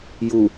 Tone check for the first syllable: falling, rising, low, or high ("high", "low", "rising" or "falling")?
low